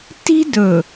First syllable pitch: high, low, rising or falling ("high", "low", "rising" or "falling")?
high